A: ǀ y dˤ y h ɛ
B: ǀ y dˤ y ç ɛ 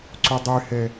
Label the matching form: A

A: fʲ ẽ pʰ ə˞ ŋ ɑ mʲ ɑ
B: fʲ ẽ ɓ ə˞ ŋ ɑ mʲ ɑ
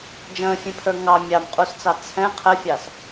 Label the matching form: A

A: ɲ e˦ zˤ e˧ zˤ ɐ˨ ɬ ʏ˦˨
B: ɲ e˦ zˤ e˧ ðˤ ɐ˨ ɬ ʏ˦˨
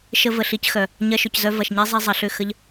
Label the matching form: A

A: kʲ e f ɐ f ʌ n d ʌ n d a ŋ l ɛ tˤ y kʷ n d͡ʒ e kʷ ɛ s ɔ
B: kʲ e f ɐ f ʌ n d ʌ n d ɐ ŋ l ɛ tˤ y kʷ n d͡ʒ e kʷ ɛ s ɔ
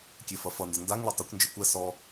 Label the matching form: A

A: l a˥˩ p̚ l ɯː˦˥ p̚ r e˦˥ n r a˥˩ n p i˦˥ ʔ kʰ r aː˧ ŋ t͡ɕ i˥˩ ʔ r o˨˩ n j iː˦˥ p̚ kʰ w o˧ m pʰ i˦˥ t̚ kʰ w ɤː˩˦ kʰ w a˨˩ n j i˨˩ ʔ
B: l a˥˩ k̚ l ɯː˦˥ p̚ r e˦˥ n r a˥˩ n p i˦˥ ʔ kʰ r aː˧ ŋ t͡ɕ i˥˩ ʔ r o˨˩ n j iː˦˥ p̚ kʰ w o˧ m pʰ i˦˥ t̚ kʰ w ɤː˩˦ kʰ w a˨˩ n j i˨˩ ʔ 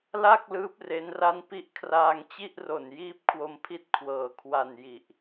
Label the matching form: B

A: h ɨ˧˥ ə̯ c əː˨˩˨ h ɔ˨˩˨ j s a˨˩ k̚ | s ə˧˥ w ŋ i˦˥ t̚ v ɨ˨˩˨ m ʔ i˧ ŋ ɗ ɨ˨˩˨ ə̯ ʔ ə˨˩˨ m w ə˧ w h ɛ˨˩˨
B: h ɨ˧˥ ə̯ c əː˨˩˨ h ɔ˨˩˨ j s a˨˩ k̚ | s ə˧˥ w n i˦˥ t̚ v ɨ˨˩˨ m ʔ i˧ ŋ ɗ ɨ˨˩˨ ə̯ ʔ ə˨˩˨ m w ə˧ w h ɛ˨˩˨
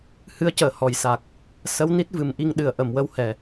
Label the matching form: B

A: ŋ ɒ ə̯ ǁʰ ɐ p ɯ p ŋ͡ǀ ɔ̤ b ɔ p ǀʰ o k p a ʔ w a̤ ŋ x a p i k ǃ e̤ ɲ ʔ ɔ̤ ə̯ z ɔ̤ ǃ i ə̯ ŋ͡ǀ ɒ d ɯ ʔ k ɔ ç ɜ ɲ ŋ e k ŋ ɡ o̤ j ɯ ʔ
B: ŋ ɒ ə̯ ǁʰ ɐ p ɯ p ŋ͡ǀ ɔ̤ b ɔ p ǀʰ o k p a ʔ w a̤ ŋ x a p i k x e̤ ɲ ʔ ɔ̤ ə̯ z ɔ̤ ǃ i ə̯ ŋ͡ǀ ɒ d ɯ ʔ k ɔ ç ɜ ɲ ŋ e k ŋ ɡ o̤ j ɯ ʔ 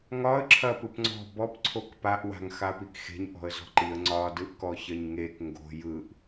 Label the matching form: B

